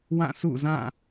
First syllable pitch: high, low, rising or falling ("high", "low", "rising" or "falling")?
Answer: falling